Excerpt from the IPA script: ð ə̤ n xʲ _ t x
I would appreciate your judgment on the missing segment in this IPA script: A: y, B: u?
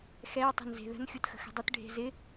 B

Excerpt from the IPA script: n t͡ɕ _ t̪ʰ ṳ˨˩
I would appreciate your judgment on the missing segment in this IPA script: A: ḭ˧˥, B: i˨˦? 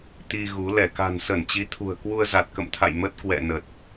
B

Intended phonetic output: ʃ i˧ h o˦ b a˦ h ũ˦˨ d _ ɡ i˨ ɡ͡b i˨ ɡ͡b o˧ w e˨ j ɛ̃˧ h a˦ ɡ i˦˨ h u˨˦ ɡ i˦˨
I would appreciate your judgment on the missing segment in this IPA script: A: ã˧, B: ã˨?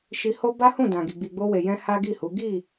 B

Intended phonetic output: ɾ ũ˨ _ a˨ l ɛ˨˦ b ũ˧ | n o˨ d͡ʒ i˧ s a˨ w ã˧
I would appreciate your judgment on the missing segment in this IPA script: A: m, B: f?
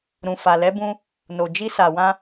B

